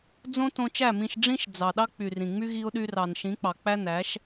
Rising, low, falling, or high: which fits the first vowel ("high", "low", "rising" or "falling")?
high